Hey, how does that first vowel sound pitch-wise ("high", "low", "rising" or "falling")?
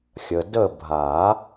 low